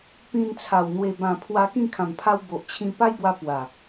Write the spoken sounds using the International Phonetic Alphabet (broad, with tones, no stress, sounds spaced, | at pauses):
p ĩ˧ n t͡sʰ a˨˩ w n̪ w e˨˩ b ã˨˩ pʰ w a˧ k ĩ˥˧ kʰ ã˨˩ m pʰ a˧ w b o˨ ʔ t͡ɕʰ ĩ˧ p a˦ j b w a˧ p w a˨˩